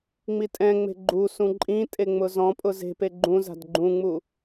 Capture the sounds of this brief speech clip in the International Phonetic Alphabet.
ŋ͡m i tʼ ɛ̃ ŋ͡m e̤ ɡ͡ǃ u s ũ ǃʼ ĩ tʼ e ŋ͡m ʊ z ɔ̃ pʼ ʊ z e̤ p e ɡ͡ǃ ũ z a̤ d ɡ͡ǃ ũ ŋ͡m u

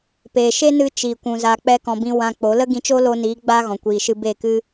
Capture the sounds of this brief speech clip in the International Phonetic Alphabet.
p eː˨ ʃ e˦ n ɨ˧ t͡ʃ i˨ kʷ ũ˨ z a˨ k͡p ɛ˦ k ɔ̃˧ b ĩ˦ w ã˧ k͡p o˨˦ l ə˦ ɡ ĩ˧ t͡ʃ o˦ l o˧ n iː˨˦ ɡ͡b aː˦ ɣ ɔ̃˨ kʷ iː˨ ʃ ɨ˧ b e˦˨ k ɨ˦

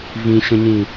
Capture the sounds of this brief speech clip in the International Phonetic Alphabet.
v ĩ ɕ ə̃ ɲ ĩ

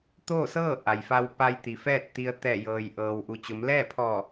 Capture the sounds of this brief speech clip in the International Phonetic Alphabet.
t̪ oː˥˨ s ɤː˥˨ ʔ a˩ j f a˧ w p a˧ j t̪ i˩ f ɛː˥˨ t̚ t̪ i˧ ə̯ t̪ ɛː˧˩ j ɤː˩ j ʔ ɤː˩ w ʔ u˩ t͡ɕ o˩˧ m l ɛː˥˨ pʰ ɔː˧˩

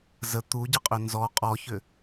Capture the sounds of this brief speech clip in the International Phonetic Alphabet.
z ə t̪ u ɟ ə qʼ ʏ n z ɔ qʼ ɔ ç ʏ

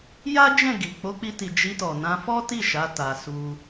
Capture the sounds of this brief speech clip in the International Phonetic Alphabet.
j a˦ d͡ʒ ɛ̃˦˨ ɡ i˨ k͡p o˨˦ k͡p i˧ t i˨ d͡ʒ i˧ t ɔ˨ n ã˧ f ɔ˦ t i˦˨ ʃ a˨˦ t a˧ s u˦

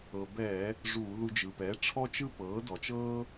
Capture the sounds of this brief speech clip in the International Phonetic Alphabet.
ɤ˩ b ɛː˧˩˧ | ʐ uː˧˩˧ ð u˧ d͡ʒ ɯ˩ p ɛ˩˥ ʈ͡ʂʰ ɔ˥ t͡ʃ ɯ˥ p ɤː˩˥ d ɔ˩ t͡ʃ ɤː˥

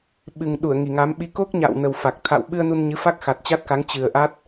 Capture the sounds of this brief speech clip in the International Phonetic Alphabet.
ɓ ɨ˨˩ ŋ ɗ u˧˩ ə̯ ŋ i˨˩ ŋ a˨˦ m ɓ i˧ k o˦˥ k̚ ɲ a̰ː˧˨ w n ə˨˩ w f a˨˩ k̚ t̪ʰ a̰˧˨ w ɓ ɨ˧ ə̯ n u˧ n ɲ ɨ˨˦ f a˦˥ k̚ x a˨˩ t̚ t͡ɕ a˦˥ t̚ k a˨˦ ŋ t͡ɕ ɨ˨˩ ə̯ ʔ a˦˥ t̚

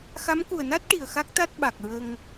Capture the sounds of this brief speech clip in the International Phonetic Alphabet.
x a˧˥ m k u˨˩ ə̯ n a˦˥ t̚ ʈ i˨˩ ə̯ x a˦˥ k̚ t̪ a˦˥ t̚ ɓ a˨˩ k̚ ɹ ə˧ ŋ

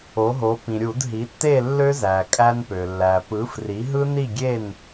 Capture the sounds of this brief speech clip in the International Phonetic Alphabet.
o˩˥ ɦ o˩˥ p ĩ˩ ɾʲ u˧˩˧ d ɦ i˩˥ tː e˥˨ lː ø˦˥ z æ˩ kʼ æ˧ n p ø˩ lː æ˩ p ɯ˩˥ f r i˩˥ ɦ ɯ˦˥ n i˥˨ ɡʲ e˥˨ n

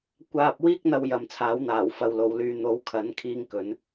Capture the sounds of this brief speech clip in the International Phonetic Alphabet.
kʷ aː˨ p̚ w iː˧ k̚ n̪ ɐ˥ w j ɐ˨˧ m t͡sʰ aː˨˥ w n̪ aː˨˩ w f ɐ˨ w l o˨ w l yː˧ n̪ o˨˥ w kʰ ɐ˨˥ n kʰ iː˥ ŋ k ɵ˨˥ n

